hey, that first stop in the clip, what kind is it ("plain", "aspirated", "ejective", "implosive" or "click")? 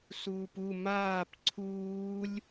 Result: plain